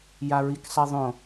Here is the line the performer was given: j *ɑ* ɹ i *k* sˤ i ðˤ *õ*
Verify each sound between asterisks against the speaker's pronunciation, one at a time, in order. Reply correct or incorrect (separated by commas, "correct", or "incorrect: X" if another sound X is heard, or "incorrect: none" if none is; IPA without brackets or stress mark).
incorrect: a, correct, correct